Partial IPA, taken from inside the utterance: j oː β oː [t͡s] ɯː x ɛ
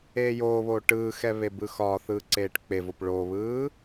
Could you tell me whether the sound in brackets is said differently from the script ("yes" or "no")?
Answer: yes